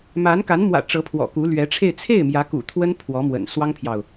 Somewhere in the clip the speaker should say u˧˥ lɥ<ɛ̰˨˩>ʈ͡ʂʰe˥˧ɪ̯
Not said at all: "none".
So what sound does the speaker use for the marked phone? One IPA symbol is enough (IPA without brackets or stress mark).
ɛ˧˥